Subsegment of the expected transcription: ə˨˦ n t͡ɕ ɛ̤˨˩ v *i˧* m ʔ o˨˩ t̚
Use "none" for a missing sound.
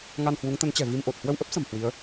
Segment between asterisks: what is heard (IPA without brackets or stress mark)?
i˧